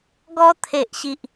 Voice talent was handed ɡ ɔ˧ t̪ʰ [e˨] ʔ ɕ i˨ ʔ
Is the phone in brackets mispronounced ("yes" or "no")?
no